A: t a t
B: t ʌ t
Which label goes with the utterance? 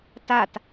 A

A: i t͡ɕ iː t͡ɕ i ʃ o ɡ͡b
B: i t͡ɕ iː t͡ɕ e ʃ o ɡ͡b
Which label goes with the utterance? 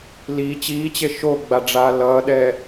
B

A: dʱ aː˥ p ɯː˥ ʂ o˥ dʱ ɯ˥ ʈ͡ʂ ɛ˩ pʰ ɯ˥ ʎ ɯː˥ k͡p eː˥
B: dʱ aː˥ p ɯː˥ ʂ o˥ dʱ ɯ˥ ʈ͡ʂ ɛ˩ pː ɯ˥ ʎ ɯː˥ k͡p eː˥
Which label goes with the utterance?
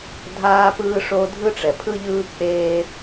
A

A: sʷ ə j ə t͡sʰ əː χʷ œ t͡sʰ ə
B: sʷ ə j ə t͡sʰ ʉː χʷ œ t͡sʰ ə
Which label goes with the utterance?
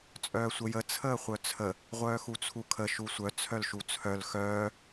A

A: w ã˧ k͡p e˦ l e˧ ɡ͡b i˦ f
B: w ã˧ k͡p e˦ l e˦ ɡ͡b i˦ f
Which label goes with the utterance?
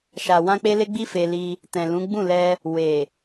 B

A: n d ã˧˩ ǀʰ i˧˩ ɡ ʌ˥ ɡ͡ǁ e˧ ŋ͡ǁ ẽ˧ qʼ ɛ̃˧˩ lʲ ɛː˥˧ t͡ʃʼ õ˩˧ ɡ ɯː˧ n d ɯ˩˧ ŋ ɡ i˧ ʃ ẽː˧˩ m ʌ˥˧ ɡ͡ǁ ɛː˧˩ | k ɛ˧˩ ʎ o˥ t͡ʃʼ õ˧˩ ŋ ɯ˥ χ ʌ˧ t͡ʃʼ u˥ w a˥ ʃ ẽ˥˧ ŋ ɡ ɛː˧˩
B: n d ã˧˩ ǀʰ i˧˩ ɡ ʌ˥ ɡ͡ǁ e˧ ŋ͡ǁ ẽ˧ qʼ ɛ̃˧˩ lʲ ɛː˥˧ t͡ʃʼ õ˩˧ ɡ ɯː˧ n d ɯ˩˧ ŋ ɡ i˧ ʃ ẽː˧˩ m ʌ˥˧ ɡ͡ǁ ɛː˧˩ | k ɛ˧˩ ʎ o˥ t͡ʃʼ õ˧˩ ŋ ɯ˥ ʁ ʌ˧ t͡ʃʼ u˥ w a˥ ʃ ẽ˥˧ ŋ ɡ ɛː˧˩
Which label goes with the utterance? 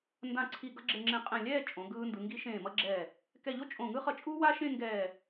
A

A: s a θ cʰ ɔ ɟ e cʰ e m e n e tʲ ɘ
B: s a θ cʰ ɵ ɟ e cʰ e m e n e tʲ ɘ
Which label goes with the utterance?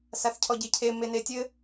A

